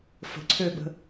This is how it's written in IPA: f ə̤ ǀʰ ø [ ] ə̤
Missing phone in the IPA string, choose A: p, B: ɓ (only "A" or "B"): B